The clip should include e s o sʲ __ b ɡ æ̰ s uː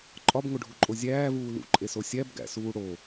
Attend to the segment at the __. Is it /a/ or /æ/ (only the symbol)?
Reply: æ